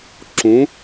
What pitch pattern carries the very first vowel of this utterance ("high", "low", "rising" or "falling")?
rising